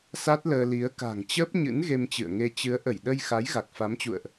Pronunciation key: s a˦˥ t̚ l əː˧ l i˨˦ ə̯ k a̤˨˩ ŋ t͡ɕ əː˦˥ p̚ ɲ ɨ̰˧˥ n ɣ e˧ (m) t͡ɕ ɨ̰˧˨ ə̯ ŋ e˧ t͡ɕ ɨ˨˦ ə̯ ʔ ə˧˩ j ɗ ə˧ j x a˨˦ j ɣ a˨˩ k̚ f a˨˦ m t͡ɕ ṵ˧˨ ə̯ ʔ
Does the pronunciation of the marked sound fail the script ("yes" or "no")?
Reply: no